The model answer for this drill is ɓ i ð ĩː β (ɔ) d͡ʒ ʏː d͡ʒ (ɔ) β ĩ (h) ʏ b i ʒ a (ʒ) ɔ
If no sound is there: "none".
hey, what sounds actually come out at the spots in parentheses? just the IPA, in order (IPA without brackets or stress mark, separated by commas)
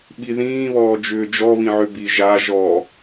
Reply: ɔː, ɔ, ʕ, ʒ